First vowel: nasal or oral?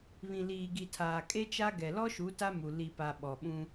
nasal